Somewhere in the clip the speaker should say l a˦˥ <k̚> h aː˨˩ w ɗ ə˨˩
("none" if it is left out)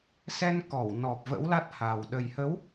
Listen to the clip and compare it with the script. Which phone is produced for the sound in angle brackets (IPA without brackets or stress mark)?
t̚